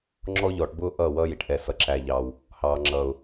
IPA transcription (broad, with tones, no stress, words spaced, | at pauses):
ŋ͡ǁɔ˦ʎɔː˨ʈ bʊː˦ ʔʌː˦˨wʌː˦ji˨ʈ ʔɛ˨ sʌ˨ǁæ˨ʎɑː˨w | hɑː˨ŋ͡ǁʌː˨ʊ̯